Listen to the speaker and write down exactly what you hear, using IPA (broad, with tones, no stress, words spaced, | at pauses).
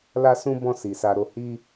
la˦sũ˦ bɔ̃˦˨si˨ sa˧ ɾo˧hi˦